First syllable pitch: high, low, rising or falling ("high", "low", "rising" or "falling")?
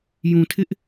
low